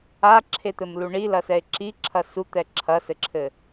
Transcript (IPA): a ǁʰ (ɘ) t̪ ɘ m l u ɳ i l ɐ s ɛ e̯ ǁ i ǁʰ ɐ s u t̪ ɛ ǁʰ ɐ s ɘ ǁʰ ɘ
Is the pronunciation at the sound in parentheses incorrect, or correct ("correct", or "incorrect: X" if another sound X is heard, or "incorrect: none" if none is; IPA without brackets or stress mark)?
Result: incorrect: e